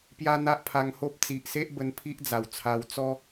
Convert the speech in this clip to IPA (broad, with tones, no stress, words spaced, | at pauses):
pja˦n̪a˦ʔpʰa˧ŋho˦p̚ t͡si˨ʔse˦ʔbə˧n pʰi˦ʔ d͡za˨˩wt͡sʰa˧w t͡sɔ˦